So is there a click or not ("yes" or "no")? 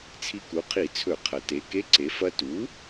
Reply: yes